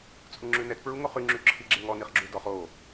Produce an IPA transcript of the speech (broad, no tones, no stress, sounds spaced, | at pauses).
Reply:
t͡sʼ u ŋ͡ǁ ʉ n ɛ t p ɹ u ŋ o χ y ŋ͡ǁ y ǁʰ i ɡ͡ǁ e ŋ ɔ n i χ ɡ͡ǁ u d ɔ χ o